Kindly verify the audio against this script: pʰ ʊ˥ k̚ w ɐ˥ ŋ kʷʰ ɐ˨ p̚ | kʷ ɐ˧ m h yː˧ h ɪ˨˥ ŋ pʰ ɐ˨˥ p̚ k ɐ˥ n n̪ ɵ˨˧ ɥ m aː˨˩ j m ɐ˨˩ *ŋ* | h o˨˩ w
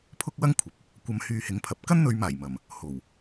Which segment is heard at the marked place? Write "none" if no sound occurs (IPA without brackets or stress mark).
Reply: m